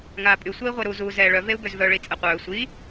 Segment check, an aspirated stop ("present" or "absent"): absent